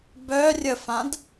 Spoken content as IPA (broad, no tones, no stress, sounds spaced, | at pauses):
b œ rʲ ə f ã d